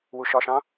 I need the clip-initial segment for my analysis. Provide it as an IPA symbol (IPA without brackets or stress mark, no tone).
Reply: w